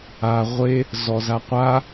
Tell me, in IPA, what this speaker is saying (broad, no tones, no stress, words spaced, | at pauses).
a ʁʷe | zɔzaqʷa